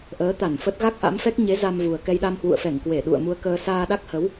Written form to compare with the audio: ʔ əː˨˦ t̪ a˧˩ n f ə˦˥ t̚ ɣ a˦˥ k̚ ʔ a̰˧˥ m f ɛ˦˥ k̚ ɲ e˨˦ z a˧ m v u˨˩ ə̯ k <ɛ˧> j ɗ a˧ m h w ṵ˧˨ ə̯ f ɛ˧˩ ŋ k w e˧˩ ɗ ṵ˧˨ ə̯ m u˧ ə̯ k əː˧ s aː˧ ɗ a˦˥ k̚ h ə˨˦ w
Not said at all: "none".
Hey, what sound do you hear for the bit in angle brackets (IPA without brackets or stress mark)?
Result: ɛ˧